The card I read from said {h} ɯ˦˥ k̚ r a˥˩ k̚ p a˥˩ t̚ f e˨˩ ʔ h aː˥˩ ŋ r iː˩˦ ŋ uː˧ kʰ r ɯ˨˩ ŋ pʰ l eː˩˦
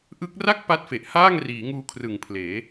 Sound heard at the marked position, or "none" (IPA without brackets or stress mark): ʔ